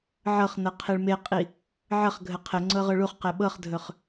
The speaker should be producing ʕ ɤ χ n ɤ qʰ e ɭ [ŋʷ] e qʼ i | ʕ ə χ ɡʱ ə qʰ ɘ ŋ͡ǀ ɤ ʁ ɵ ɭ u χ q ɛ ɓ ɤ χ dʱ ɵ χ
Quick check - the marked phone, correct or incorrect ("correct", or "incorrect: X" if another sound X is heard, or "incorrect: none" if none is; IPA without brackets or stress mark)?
incorrect: m